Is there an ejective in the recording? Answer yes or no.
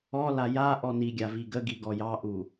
no